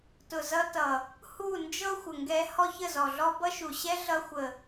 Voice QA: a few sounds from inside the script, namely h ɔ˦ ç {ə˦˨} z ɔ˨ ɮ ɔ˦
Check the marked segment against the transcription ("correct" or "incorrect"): correct